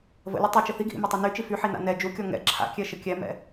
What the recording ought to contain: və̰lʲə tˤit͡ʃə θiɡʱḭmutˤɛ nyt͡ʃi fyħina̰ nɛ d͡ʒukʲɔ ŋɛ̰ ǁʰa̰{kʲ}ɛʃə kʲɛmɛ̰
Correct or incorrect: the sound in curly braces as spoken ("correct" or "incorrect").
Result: correct